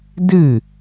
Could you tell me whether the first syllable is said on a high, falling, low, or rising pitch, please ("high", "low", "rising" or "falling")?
falling